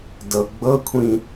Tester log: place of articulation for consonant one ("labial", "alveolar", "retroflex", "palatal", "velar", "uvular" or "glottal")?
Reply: alveolar